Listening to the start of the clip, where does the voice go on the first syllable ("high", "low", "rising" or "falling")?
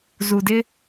low